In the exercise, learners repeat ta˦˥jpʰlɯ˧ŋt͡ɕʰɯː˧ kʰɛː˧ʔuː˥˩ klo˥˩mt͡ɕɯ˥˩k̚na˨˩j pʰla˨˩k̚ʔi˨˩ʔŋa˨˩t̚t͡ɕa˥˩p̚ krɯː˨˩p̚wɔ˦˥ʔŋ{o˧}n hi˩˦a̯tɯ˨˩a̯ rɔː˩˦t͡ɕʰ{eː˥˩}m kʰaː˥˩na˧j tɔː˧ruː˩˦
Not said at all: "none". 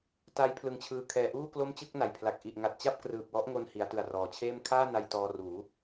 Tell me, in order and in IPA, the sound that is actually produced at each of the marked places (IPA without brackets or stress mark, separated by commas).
o˧, eː˥˩